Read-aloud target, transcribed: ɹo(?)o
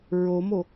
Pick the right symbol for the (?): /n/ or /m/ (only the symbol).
m